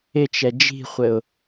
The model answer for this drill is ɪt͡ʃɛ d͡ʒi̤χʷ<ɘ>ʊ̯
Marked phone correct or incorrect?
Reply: correct